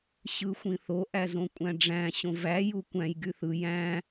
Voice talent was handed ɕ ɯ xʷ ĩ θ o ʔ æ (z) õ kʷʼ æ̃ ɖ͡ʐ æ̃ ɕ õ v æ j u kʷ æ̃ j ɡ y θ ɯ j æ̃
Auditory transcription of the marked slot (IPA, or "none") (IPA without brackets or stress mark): z